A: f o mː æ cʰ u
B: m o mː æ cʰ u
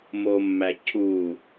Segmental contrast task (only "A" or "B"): B